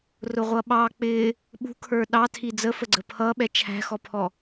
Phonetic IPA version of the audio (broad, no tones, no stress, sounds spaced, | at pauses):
r ʊ ʁʷ ʌ ɓ ɑ k͡p ɪ | ɓ ṳ kʰ ə˞ ɗ ɑ tʰ i d͡z ə f ə ɡ͡ǀ ə pʰ ʌ ɓ ɛ t͡ʃʰ æ̤ x ɔ pʰ ɔ